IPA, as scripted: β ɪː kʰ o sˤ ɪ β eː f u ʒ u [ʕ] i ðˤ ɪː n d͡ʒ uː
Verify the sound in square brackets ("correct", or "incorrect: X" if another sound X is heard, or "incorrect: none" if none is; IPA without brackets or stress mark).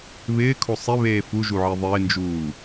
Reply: correct